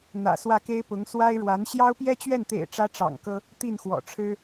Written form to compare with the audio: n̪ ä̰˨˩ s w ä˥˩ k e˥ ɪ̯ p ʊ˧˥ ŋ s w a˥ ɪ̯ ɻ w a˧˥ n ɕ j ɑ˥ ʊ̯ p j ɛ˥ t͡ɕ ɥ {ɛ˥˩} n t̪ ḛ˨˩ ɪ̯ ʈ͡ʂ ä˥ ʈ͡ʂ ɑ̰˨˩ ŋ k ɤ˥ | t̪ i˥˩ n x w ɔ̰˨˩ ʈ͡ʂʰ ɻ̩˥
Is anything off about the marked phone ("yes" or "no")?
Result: no